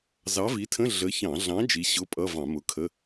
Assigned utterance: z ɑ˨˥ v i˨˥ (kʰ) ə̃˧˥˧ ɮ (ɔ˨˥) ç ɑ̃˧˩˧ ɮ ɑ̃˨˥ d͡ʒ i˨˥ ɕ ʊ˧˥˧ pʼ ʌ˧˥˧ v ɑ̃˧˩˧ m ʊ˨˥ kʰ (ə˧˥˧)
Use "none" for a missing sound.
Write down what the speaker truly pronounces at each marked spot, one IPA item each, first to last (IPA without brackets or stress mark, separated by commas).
tʰ, ə˨˥, ə˧˥˧